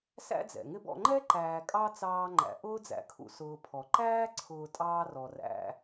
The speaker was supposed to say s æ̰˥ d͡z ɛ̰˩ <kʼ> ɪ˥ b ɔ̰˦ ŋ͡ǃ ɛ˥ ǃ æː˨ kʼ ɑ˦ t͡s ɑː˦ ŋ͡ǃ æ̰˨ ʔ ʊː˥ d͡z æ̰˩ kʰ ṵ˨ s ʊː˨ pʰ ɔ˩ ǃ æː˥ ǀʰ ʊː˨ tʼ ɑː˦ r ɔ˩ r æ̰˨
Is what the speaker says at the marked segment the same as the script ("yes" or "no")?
no